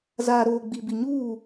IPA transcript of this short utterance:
zaː˨ɾoː˨ ɡ͡bi˨bi˨ɲuː˦˨

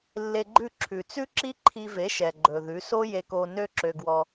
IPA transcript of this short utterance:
lːe˧ɡ͡ǃʉ˦˨ǁʰʉ˨ t͡sʉ˦ǁi˦ ǃʰi˧ve˨˦ ʃɛ˨ɡ͡ǃɵ˨ðʉ˨˦ so˦je˧ko˧ nø˦ǁø˧ɡwɔ˧

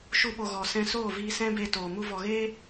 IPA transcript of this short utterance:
ʃu˦ɓo˧ɣɔ˨ sɛ̃˧soː˦˨viː˧ sɛ̃˦ beː˧toː˨ mu˧vɔ˨ɣeː˦

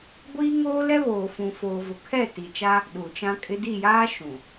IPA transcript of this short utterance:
ɡʷiː˦ŋoː˦lɛ˦ βoː˨fũ˨foː˨ vʊ˨kʰɛ˦˨ti˨t͡ʃa˦ | ɗuː˨t͡ʃã˦kʼɪ˦ di˦˨jaː˦ ʃũ˨

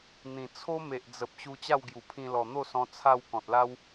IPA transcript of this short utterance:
n̪ĩ˨˩ t͡sʰo˦me˨ʔd͡zə˨p̚ ɕu˧t͡ɕa˥˧wɡju˨˩pʰĩ˧ lɔ˨˩n̪o˥˧sɔ̃˧ t͡sʰa˥˧w kɔ̃˨t̚la˦w

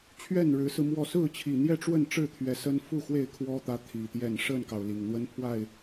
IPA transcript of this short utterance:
t͡ɕʰɥɛ˥˨nɻɻ̩˨˦sɹ̩˧mwɔ˥˨ sɹ̩˥˨t͡ɕʰi˨˩ n̪jɛ˥˨ʈ͡ʂwə˥˨nʈ͡ʂɻ̩˥˨ t̪ʰɥɛ˨˦sə˦n fu˥˨xwe˥˨ɪ̯ kʰwɔ˦t̪ä˨˦ t̪ʰi˨˩t̪jɛ˥˨n ʂə˥˨nkɑ˩ʊ̯ li˨˩ŋn̪wə˦npʰwa˥˨ɪ̯

